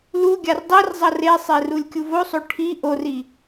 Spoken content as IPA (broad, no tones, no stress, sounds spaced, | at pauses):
l u ɡʲ a r dˤ i r zˤ ʌ r e sˤ e r u lʲ kʲ u v o sˤ o ʈʰ i ʔ o r i